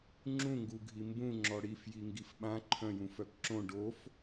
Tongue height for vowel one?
high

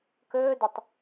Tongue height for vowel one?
mid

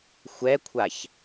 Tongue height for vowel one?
mid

